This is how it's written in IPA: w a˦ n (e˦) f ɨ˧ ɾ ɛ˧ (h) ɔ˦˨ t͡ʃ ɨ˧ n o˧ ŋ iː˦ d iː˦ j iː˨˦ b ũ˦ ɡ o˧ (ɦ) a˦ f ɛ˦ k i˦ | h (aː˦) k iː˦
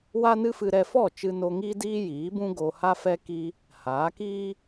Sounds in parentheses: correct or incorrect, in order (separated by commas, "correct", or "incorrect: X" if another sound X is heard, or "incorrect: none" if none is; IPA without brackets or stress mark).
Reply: incorrect: ɨ˦, incorrect: f, incorrect: h, incorrect: aː˨˦